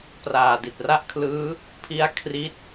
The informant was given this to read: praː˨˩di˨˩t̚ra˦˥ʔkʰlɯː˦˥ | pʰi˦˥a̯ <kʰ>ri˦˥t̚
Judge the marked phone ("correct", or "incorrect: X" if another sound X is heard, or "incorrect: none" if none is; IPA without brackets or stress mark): correct